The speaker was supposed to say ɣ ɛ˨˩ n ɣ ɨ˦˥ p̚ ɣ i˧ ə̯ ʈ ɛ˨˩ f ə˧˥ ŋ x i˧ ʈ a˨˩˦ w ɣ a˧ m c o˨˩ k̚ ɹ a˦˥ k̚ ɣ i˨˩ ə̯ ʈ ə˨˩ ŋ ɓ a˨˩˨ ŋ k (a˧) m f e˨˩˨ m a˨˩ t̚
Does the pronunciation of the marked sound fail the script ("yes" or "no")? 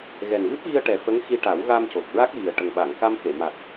no